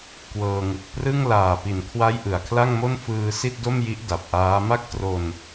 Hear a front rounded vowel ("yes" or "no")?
no